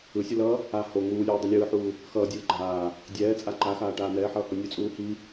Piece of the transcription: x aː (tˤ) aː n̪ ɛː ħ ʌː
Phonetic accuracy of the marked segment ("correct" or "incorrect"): incorrect